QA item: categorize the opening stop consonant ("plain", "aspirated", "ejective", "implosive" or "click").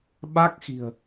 implosive